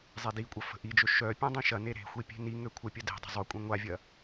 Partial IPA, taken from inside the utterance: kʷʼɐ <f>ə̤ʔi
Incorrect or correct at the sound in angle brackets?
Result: correct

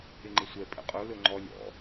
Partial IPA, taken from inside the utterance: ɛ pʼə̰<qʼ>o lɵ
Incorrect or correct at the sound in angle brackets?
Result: correct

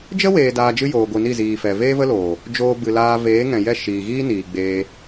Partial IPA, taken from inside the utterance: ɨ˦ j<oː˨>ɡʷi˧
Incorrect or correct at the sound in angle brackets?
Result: incorrect: oː˧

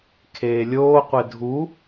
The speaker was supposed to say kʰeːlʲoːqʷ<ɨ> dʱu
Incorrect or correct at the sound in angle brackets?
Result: incorrect: e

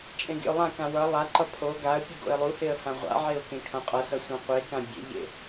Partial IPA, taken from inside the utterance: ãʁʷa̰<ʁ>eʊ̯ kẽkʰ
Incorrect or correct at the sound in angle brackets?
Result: incorrect: ʕ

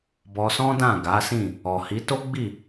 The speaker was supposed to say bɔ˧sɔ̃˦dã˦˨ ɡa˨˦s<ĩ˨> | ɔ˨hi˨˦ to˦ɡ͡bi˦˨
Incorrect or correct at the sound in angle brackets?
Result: incorrect: ĩ˦˨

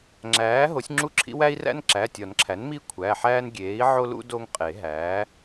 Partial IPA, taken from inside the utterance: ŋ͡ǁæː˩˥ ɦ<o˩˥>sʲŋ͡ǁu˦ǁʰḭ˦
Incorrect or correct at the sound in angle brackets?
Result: correct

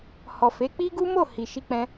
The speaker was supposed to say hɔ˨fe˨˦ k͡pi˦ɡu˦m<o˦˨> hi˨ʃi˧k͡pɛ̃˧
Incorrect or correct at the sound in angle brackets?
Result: correct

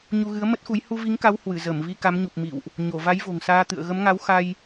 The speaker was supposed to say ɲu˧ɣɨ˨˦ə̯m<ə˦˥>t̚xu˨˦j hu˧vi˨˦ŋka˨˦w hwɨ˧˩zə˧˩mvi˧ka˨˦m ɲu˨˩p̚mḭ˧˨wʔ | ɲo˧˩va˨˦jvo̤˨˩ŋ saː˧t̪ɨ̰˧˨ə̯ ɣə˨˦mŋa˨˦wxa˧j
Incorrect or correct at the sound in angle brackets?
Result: correct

